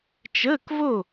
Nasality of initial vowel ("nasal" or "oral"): oral